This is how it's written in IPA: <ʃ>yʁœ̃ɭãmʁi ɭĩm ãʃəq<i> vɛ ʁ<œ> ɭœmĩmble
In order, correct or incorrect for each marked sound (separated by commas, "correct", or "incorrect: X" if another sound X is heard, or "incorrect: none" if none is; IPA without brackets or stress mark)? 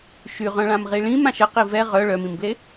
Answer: correct, correct, correct